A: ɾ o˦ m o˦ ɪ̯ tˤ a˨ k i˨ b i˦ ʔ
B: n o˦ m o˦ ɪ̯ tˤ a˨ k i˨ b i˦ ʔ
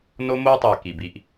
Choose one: B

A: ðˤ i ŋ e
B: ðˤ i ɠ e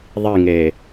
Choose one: A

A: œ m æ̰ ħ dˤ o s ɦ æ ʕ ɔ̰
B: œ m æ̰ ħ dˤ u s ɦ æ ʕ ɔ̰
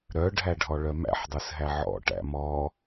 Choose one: B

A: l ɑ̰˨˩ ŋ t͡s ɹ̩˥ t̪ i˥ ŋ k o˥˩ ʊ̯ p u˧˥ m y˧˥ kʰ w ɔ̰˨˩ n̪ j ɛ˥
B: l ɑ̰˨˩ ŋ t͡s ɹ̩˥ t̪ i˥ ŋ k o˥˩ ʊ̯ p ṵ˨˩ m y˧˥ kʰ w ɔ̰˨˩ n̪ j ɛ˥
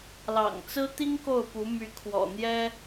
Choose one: A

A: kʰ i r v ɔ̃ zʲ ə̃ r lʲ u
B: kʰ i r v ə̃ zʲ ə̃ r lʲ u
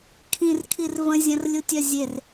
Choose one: B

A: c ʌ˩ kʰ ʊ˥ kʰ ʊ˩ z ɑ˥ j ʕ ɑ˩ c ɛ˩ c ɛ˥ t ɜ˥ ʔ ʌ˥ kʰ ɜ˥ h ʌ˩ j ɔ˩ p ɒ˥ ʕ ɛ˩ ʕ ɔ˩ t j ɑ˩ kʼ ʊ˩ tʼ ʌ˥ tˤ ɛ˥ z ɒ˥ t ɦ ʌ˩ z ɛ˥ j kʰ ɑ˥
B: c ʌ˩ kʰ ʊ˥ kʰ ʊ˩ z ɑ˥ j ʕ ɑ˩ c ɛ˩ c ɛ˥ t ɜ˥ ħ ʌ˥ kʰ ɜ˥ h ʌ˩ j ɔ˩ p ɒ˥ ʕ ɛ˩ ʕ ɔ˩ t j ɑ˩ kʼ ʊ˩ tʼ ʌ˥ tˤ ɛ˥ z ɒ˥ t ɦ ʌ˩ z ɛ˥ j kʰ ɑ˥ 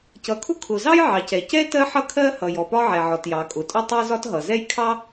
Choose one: B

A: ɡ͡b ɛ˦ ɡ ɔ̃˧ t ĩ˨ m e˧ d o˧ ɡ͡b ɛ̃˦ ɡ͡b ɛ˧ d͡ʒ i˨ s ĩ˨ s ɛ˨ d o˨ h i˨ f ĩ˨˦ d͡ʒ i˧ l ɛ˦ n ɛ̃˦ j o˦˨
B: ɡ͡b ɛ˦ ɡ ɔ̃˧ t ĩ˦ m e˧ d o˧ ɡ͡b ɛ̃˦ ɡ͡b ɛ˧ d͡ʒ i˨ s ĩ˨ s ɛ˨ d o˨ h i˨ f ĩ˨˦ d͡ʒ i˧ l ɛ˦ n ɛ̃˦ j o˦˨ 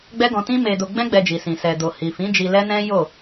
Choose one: B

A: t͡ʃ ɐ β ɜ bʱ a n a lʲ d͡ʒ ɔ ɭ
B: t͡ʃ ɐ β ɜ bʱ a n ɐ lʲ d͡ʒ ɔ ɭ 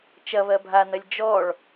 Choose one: B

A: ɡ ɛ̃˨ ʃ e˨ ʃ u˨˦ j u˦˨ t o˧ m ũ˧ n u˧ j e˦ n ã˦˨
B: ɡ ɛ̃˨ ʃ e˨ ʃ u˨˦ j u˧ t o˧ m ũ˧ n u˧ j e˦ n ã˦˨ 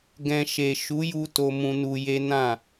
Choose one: B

